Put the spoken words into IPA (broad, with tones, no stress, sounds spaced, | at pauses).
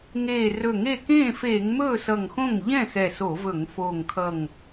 ŋ eː˧˩ r ɵ˧˩ ŋ e˥˩ k ẽː˥˩ f eː˧˩˧ ŋ m ɵː˥˩ s ʌ˧˩ ŋ x õ˥˩ ŋ ʎ ɛ̃˥˩ x ɛ˧˩ s o˧˩˧ v ɵ˧˩˧ ŋ f oː˧˩ ŋ kʰ ʌ˧˩ ŋ